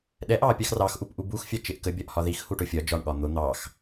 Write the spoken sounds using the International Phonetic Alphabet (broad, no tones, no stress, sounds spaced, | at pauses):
ɗ ɛ ʔ ɑ pʲ ɑ x r ɑ x ʔ u p ʔ u b u x fʲ ɑ t͡ʃ ɪ ʔ k ə bʲ ɒ ʔ h ɒ ð i x h u ʈ ʊ fʲ ɒ d͡ʒ ɒ ɳ ɠ ɒ n̪ ʊ n̪ ɑ x